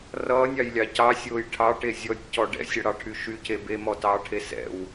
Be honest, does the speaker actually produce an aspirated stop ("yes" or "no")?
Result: yes